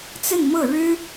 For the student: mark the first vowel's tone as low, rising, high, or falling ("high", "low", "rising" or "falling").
falling